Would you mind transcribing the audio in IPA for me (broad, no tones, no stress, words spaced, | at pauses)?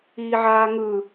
iːʕaːŋɯ